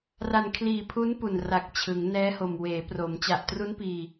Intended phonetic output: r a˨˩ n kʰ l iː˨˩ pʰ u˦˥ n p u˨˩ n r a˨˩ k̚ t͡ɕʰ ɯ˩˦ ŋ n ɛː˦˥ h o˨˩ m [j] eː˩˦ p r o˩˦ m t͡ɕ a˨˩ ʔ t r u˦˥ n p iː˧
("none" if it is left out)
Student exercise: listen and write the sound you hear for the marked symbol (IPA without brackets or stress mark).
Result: w